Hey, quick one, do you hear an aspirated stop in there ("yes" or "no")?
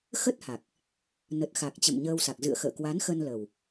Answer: no